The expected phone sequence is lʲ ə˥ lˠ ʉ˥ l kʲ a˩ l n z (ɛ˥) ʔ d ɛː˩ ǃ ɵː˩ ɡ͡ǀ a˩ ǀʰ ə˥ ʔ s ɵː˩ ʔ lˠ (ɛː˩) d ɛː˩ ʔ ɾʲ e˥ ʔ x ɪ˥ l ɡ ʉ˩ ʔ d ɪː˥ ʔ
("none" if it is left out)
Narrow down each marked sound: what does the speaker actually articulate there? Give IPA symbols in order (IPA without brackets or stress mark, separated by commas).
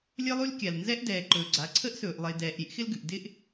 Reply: ɛ˥, ɪː˩